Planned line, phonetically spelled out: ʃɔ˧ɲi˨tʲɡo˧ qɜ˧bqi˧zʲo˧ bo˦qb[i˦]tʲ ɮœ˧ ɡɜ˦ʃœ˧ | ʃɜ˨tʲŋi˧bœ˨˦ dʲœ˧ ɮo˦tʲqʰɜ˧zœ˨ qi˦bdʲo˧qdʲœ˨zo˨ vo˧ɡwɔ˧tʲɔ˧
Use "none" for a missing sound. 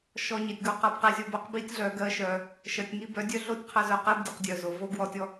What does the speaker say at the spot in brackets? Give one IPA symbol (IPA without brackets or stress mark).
i˦